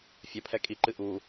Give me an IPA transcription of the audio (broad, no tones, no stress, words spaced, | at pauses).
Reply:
fʲɐpʰɛ kʼiǃɨ ʔu